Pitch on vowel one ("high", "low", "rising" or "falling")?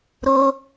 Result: high